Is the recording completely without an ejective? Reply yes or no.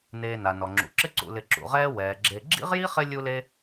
yes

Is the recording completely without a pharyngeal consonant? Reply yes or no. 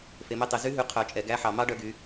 no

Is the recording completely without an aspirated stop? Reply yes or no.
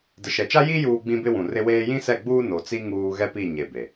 yes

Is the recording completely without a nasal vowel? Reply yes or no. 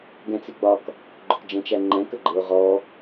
no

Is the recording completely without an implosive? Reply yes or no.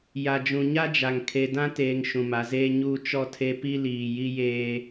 yes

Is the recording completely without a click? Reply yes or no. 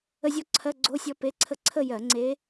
no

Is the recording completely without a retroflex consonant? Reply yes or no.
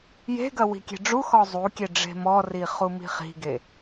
no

